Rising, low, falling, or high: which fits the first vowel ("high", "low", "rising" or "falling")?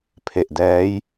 low